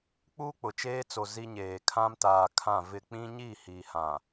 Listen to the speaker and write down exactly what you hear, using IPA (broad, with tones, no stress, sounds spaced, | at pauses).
k͡p uː˦ k͡p ʊ˨ t͡ʃ eː˦ t͡s o˨ z i˦ ɲ eː˨ kʰ ã˦ m t aː˨ kʰ ã˦˨ v ɪ˦˨ k͡p ĩ˦ ɲ i˦˨ h i˨ h ã˨